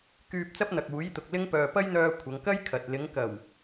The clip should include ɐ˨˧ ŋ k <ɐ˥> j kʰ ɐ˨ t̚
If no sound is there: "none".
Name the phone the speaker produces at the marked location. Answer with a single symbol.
ɐ˥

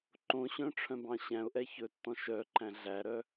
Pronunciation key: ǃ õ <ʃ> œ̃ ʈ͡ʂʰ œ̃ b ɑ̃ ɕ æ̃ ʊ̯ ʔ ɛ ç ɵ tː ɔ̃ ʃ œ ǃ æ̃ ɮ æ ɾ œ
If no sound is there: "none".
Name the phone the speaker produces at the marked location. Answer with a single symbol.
ɕ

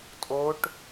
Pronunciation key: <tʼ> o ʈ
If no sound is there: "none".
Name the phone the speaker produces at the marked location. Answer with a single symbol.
tʼ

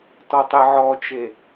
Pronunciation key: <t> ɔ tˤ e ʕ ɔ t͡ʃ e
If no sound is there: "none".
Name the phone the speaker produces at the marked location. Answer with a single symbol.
t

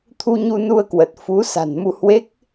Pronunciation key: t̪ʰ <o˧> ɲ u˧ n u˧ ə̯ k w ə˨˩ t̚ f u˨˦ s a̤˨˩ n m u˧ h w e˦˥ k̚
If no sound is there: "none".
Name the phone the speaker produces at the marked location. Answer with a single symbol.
u˧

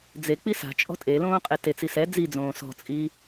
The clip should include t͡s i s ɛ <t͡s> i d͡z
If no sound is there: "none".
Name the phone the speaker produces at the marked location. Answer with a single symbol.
d͡z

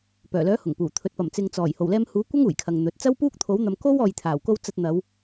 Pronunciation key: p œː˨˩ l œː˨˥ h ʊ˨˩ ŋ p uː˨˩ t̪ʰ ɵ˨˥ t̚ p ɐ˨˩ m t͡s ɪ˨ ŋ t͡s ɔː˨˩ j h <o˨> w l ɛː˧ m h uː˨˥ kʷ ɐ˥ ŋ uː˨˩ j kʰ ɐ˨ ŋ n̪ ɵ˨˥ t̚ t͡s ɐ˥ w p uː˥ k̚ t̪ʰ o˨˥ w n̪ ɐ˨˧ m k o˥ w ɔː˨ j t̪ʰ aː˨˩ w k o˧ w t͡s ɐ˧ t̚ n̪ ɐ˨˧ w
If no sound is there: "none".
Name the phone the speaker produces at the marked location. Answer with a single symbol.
o˨˩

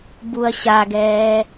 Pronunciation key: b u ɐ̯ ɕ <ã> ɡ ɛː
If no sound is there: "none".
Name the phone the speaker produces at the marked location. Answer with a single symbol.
a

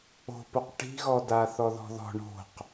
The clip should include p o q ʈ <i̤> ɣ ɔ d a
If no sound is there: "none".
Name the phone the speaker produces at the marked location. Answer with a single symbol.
i̤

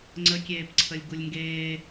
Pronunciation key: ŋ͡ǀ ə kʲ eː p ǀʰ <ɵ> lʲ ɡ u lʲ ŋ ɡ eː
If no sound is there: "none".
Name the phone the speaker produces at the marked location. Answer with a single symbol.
ə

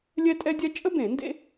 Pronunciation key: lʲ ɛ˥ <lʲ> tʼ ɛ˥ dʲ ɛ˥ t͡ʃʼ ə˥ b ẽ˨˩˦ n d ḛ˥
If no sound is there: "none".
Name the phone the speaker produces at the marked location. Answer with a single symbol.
none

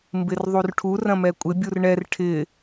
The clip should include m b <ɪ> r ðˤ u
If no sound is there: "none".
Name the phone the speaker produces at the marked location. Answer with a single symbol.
ɪ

